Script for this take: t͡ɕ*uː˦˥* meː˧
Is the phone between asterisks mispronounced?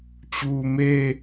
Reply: yes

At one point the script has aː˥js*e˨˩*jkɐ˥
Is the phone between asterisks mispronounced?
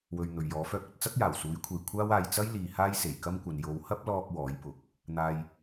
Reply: no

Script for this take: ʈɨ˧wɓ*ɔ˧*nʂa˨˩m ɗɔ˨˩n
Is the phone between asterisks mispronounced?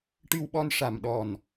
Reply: no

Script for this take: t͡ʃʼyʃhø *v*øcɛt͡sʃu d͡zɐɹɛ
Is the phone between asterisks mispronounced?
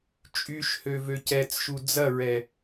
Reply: no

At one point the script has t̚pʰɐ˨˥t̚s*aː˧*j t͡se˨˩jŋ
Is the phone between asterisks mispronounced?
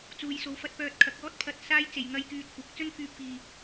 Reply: no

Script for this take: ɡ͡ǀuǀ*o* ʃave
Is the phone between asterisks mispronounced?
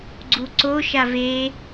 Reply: no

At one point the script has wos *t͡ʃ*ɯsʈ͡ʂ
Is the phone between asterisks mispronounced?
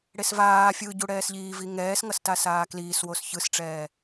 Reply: yes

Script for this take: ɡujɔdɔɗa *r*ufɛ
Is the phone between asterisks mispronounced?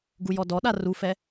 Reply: no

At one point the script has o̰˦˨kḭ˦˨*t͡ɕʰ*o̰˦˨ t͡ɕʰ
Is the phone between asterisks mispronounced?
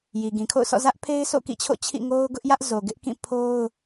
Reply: no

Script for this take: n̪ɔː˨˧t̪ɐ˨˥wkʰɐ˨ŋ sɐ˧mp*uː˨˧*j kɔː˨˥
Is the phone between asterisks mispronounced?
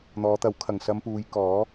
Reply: no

